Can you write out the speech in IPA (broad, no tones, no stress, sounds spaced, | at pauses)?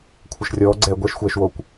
kʷʰ ɐ ʃ rʲ ɔː ɡ͡ǀ ɛː ɡʷ ɛ ʃ xʷ ɛː ʃ w oː kʷ